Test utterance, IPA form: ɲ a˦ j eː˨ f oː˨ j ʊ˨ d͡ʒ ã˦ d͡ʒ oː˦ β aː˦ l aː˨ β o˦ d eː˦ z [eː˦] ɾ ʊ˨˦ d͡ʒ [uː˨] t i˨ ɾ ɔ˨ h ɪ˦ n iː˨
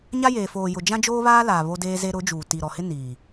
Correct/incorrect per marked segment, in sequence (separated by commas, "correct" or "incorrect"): incorrect, correct